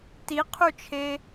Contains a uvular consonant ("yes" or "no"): yes